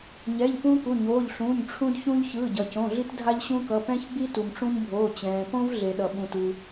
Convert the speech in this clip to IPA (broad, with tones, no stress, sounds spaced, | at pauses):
ɲ ɛ˩˧˩ ʎ p ũː˦ k u˩˧˩ ɲ oː˩˧˩ ʎ ɬ ũː˩˧˩ ɲ ʈ͡ʂʰ ũ˦ d ç ũ˦ ʎ ç ɯː˩˧˩ ɟ ʌ˩ c õ˩˧˩ ɮ i˦ t dʱ a˦ ʎ ɕ ũ˦ k ʌ˩˧˩ p ɛ̃˦ ç ɡ͡b i˦ t u˩ m ʈ͡ʂ ũ˦ ɲ bʱ oː˩˧˩ t͡ɕ ɛ̃ː˩ p õ˦ v ɮ e˩ ɗ ʌ˩ ɓ ũ˩ t u˩